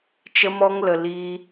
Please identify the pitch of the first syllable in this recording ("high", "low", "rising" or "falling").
high